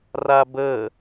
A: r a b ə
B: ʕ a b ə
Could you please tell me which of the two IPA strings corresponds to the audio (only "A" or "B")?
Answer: A